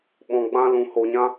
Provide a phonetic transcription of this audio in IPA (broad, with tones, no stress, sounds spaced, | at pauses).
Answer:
ɓ ɔ̃˧ ɡ͡b ã˦ l ũ˧ h o˧ ɲ ã˦